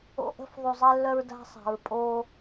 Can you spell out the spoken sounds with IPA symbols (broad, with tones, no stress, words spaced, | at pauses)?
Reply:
o̰˦ʔə̤˦f ðˤu˨zˤe˦lːœ˦ɹ da̤˦sˤa̤˨ɹ pʼoː˦